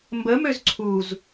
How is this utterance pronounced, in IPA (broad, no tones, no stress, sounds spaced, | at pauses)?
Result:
m b ə m ø z ǀʰ u z